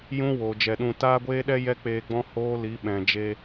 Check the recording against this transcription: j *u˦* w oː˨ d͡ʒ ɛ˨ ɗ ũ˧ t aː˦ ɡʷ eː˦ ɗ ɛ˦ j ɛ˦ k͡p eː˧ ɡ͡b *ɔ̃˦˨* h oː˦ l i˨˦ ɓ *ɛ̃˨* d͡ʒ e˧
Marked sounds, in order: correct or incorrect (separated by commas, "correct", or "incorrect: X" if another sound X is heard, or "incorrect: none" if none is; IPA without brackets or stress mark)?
incorrect: ũ˦, incorrect: ɔ̃˦, correct